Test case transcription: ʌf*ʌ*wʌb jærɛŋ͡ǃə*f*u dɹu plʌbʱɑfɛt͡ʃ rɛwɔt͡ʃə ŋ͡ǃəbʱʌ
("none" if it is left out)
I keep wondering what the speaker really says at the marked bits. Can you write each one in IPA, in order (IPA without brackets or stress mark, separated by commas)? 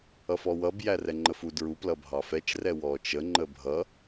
ɔ, f